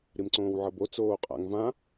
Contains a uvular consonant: yes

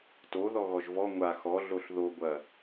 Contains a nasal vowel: no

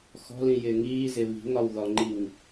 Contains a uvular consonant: no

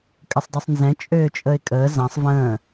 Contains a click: no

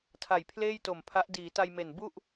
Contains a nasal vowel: no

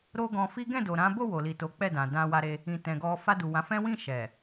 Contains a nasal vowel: yes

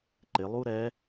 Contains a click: yes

